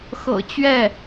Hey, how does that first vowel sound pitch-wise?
low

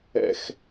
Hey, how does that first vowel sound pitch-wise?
low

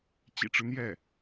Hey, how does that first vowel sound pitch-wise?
low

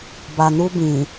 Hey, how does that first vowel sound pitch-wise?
low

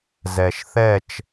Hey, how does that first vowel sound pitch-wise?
low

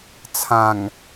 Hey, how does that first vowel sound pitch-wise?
low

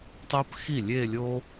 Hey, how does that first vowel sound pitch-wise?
high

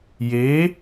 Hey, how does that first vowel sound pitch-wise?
rising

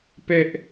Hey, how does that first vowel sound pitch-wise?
high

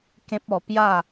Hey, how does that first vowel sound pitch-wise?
high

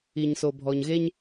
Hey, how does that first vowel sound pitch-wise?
low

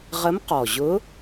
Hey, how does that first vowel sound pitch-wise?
rising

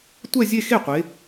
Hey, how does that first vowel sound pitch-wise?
falling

